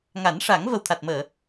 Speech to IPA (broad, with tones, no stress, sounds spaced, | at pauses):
ŋ a˨˩˦ n ʂ a˨˩˦ ŋ v ə˨˩ w t̪ʰ a˨˩ t̚ m əː˨˩˨